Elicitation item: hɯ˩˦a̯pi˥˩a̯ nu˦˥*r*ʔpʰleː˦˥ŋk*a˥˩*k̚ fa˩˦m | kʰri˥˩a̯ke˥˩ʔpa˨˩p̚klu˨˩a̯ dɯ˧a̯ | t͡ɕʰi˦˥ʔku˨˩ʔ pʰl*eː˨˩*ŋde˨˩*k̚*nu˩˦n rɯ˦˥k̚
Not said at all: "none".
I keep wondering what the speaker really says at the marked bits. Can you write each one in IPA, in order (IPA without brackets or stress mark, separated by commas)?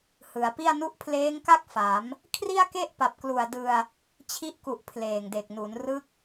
none, a˥˩, eː˨˩, k̚